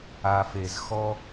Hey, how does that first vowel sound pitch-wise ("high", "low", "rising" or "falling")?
low